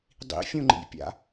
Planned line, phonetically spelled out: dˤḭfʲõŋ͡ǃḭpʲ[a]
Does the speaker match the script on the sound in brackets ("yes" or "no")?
no